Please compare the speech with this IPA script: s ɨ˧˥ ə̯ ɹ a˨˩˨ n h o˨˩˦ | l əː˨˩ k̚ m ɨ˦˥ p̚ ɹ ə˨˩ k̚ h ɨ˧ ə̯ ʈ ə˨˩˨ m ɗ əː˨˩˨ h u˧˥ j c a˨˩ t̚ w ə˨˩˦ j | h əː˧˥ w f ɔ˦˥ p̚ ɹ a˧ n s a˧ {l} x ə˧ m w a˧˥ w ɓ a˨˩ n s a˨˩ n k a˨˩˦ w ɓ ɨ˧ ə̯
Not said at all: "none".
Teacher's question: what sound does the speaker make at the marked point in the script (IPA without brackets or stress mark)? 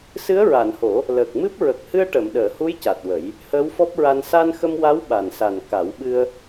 n